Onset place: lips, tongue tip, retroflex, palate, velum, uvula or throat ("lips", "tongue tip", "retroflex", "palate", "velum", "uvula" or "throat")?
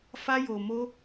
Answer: lips